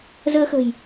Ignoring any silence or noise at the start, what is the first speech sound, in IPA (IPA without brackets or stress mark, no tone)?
z